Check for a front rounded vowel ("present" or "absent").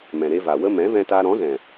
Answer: absent